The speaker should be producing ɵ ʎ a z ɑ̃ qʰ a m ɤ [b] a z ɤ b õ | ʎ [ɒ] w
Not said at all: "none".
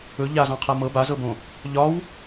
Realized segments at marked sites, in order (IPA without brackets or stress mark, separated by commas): b, ɒ